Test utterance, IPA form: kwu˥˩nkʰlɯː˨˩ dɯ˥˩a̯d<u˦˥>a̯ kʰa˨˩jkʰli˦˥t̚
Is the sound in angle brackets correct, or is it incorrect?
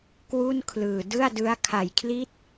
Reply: incorrect